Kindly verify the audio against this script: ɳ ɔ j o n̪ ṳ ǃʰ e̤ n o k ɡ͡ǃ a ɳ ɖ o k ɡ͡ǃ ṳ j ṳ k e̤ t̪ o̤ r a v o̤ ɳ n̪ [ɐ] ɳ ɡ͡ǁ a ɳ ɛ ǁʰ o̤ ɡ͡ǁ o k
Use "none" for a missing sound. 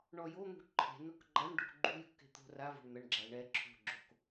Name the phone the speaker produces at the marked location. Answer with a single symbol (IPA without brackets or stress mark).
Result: ɐ